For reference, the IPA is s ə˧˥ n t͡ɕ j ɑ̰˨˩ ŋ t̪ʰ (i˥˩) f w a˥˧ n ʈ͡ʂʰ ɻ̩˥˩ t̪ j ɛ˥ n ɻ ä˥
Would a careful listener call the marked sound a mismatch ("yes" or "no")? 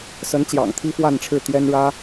yes